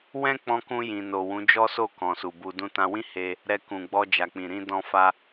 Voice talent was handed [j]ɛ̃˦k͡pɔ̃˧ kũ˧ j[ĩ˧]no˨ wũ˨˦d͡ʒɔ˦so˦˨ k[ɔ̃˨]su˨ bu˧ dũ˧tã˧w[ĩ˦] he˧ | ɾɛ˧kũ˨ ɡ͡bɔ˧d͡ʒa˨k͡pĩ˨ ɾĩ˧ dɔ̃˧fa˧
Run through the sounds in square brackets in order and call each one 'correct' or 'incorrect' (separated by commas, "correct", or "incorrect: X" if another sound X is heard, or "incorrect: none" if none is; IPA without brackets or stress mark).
incorrect: w, incorrect: ĩ˨, correct, correct